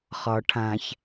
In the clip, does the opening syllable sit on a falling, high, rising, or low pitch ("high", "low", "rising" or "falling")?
low